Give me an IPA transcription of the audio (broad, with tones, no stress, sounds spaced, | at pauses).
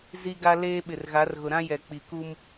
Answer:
z i˦ ɡ a˦ l eː˦ ɓ ɪ˨ r ɣ a˨˦ r ɣ ʊ˨ ɾ ã˦ j ɛ˨ k͡p i˨ k u˦ m